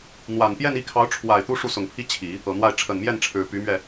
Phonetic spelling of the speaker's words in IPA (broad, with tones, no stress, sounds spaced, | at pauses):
n̪ w a˨˩ n p j ɛ˥˧ n i˥˩ kʰ ɑ˧˥ ʊ̯ ʈ͡ʂʰ w a˨˩ ɪ̯ t̪ u˥ ʂ u˥˩ s ʊ˨˩ ŋ pʰ i˥ t͡ɕʰ i˨˩˦ | ɤ˨˩ n̪ w a˥˩ ɪ̯ ʈ͡ʂʰ ə˨˩ n m j ɛ˥˩ n ʈ͡ʂʰ ɻ̩˨˩ p y˧˥ m ɥ ɛ˧